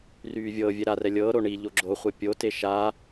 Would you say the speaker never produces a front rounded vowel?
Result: no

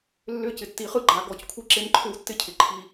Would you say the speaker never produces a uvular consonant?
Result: no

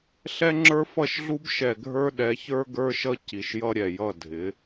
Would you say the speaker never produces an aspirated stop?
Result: yes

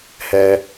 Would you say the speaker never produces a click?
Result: yes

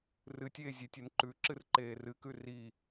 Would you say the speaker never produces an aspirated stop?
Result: yes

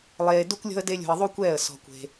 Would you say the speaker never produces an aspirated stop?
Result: yes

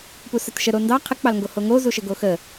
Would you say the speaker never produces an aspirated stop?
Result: no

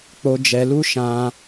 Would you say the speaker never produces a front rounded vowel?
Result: yes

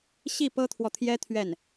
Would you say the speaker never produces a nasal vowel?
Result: yes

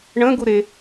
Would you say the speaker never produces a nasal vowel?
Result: no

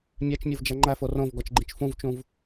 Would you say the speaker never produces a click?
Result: no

